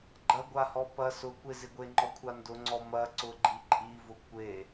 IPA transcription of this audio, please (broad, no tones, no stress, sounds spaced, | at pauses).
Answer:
ɡ͡ǃ ɐ ɡʷ a h ɔ p ɐ s ʊ kʷ e z ɪ ɡʷ e ŋ͡ǃ ɔ kʷʰ a n d ʊ ŋ͡ǀ ɔ m ɐ ǀ ʊ ɡ͡ǃ i ǃʼ i v ʊ kʷ e